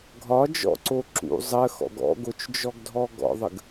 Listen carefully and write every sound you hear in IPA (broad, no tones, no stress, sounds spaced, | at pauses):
ɡʱ ɒ d͡ʒ ɔ̰ ǀ o ǁ ṵ zˤ ə x ɔ̰ ɡ ɔ̰ ɡ o t͡ʃ d͡ʒ ɔ ɡ dʱ ɔ ɡ ɔ̰ ðˤ ə ɡ